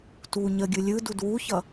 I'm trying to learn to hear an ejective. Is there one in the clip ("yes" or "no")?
no